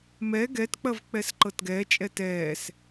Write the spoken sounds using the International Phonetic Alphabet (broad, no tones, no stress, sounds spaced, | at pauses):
m ɛ ɡ ɛ t k͡p ɐ v k͡p ɛ s ǃ ɤ t ɡ ɛː t͡ʃʼ ɛ t ɛː s